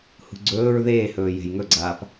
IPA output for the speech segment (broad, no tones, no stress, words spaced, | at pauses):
hṳɡ͡ǀɵːɹ ðeːhɵː je̤jŋɵɡ͡ǀaːp